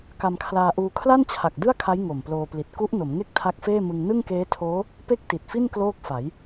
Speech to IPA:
ka˧mkʰlaː˧ʔuː˧ kʰla˥˩nt͡ɕʰa˨˩k̚ dɯ˥˩a̯kʰa˦˥j ŋo˨˩mploː˧pli˨˩t̚ ku˦˥ʔ no˩˦mŋe˥˩k̚ tʰa˦˥k̚feː˥˩mɯ˧ŋ nɯ˥˩ŋkeː˦˥tʰoː˦˥ | pe˥˩k̚ti˨˩t̚fi˥˩n kloː˥˩k̚fa˩˦j

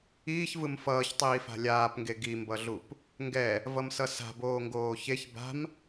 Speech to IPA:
iːçvɯm fʌːçtˤiːfa̤ lʲaːpŋɡe ɡimbʌɮup | ŋɡɛ | vʌmsʌsa̤ boːŋɡoːçeç ba̤m

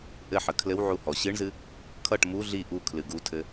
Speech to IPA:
ʔɘħə kʰlɘwʕu hɔ ɕɨɳzɨ | kʰʌʈ mu ɮi ʔukʰlɨ ɡutʰɘ

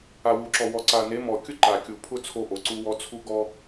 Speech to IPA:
a˨wu˨ǁɔ˨ wɔ˨ǀa˨ne˨˦ mɔ˨kʲʊ˦ ǃa˨kʲu˨ pʰʊ˦ t͡sʰo˦ʔo˨ǀu˦wɔ˦ t͡sʰu˦ɡɔ˦

